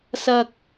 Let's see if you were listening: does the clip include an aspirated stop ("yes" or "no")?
no